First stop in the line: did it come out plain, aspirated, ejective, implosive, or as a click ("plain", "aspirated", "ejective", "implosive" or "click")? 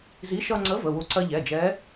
click